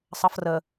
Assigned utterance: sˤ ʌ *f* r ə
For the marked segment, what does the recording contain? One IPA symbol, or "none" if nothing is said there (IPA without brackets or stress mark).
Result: f